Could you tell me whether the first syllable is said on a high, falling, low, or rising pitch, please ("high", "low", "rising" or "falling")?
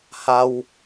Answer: high